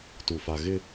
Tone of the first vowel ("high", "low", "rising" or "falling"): low